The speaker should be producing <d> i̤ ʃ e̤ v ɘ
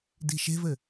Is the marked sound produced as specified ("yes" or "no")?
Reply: yes